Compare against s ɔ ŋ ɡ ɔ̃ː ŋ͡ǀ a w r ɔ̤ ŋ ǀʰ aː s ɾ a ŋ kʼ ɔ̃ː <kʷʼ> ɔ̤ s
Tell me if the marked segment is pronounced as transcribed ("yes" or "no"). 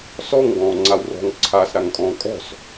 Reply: no